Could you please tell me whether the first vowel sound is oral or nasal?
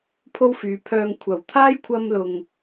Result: oral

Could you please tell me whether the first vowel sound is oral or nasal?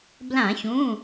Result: nasal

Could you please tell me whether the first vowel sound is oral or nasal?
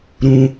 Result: nasal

